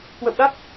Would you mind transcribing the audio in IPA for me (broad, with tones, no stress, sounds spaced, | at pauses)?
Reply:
k w ə̰˧˨ w ɗ a˦˥ t̚